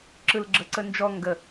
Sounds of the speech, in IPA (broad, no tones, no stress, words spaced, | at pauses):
ǁɯlɡ͡ǁəǀə nd͡ʒɔ ŋɡə